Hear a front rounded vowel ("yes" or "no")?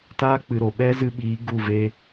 no